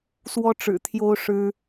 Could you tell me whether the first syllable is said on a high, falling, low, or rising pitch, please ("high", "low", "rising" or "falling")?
high